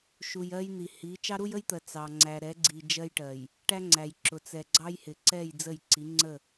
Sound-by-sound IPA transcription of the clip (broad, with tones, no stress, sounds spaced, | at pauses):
ʃ u˨ j ɜ˦ j n̪ i˨ h i˨˦ t͡ʃ ɑ˦ ɾ u˦ j ə˦ j t̪ ɜ˨ t͡s ɑ˨ ŋ͡ǀ æ˨ ɾ ɛ˨˦ ɡ͡ǀ i˨ d͡ʒ ɜ˦ j ʈ ɜ˨ j | ʈ æ˦ ŋ͡ǀ æ˨ j ǁ ʊ˨ t͡s ɛ˨ ɡ͡ǀ ɑ˦ j h ɪ˨ ǀ ɛ˦˨ j d͡z ə˦˨ j ǀ i˨˦ ŋ͡ǀ ə˦˨